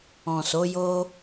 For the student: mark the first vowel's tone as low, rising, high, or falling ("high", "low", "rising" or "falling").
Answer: low